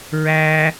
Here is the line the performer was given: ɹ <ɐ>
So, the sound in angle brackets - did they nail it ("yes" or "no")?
no